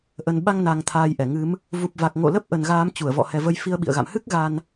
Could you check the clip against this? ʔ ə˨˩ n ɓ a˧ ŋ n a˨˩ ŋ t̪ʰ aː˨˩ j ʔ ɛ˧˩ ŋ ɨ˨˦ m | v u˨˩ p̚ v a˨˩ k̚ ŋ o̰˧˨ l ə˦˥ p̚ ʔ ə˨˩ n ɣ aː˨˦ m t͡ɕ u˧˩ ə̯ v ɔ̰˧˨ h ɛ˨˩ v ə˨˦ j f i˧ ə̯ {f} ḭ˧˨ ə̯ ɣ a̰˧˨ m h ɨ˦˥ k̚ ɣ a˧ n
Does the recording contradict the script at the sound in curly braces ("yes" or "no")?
yes